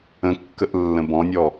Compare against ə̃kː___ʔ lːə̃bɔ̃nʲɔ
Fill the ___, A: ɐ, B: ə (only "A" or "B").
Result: B